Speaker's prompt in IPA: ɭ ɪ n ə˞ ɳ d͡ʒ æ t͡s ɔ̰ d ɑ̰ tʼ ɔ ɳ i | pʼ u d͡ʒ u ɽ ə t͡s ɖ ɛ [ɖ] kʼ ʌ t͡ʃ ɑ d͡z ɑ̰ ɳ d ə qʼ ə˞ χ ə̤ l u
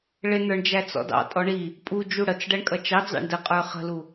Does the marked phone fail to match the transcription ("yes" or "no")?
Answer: yes